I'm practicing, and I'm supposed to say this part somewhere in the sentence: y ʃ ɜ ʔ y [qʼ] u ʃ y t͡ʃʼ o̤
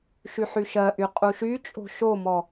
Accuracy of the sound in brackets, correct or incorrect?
correct